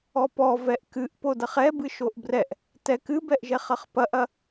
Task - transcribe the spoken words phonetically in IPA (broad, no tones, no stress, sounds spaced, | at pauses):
ɔ p ɔ v ɛ ʔ k ɨ ʔ p o d ɐ χ ɛ b ɨ ʃ o ʔ b r ɛ ʔ | t ɛ k ɨ b ɛ ʔ ʒ ɛ χ ɐ χ p ɐ ʔ ɐ